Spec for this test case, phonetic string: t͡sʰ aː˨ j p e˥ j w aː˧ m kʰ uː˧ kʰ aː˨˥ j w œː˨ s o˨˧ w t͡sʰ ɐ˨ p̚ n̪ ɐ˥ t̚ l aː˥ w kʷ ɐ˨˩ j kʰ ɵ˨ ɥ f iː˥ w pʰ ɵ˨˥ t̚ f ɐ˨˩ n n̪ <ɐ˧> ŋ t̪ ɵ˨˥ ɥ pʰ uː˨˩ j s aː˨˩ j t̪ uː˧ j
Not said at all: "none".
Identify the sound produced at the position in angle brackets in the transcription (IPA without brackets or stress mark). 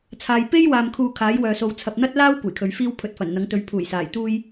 ɐ˨˥